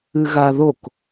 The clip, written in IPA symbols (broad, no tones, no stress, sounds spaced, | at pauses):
ɨ ɣ a ð o k